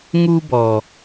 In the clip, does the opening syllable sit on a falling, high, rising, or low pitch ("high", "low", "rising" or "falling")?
high